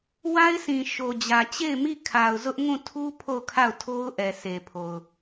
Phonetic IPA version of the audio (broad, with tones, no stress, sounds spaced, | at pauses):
w a˦ ɪ̯ s ĩ˨ ʃ o˨ d͡ʑ ä˨ t͡ɕ e˦˨ ɪ̯ m i˦˨ kʰ a˨ ʊ̯ z ʊ˦ ʔ ŋ ũ˦˨ tʰ u˦ pʰ o˦˨ ʊ̯ kʰ a˦˨ ʊ̯ tʰ o˦ ʊ̯ ʔ ɛ˨ s e˨ pʰ o˨ ʊ̯